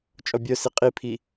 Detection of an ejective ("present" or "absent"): present